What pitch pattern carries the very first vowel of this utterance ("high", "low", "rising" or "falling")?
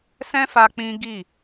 high